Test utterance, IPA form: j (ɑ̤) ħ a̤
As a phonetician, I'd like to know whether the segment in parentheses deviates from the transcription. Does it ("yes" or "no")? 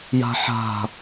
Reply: yes